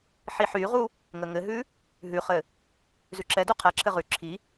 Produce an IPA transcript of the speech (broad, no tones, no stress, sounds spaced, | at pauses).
ħ i ħ y ʁ u | ŋ ə ŋ ɘ ɦ ʉ | ɦ ʉ χ ɘ | z ʉ ǁ ɛ d u qʰ ɛ ǁʰ ɘ ʁ ʉ ǁʰ i